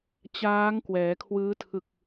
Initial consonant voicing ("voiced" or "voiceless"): voiceless